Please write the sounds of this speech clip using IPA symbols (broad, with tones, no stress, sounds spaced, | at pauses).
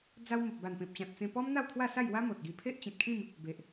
d͡z a˧ w m ə˨ p̚ b a˨˩ n p ẽ˨ p̚ t͡ɕ ã˨ t̚ t͡s ẽ˧ p ɔ˦ m n̪ a˥˧ w t̪ʰ w a˥˧ s a˥˧ j w a˦ m o˨ t̚ ɡ i˧ pʰ e˦ ʔ t͡ɕ ĩ˨ t̚ kʰ ĩ˥˧ m | b e˨ ʔ